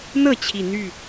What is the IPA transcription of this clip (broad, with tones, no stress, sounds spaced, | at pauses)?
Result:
n̪ ɤ˥˨ t͡ɕʰ i˨˩ n̪ y˥˨